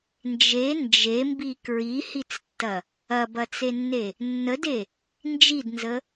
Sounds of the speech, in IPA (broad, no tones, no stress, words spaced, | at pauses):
nd͡ʒe nd͡ʒembi kɹihit͡stːɐ | ɐbɐt͡senːe | nːəde | nd͡ʒidnzə